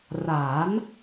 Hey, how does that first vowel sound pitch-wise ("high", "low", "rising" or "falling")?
rising